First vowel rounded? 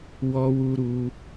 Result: yes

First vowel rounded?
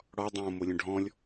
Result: yes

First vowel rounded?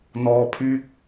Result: yes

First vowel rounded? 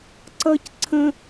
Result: no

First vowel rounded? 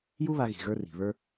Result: yes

